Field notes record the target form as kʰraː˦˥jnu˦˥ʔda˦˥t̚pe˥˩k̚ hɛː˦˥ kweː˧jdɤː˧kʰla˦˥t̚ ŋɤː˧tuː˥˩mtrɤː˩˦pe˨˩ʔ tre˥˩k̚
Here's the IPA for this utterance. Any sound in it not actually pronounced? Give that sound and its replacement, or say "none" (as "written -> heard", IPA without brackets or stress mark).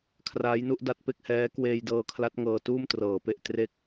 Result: none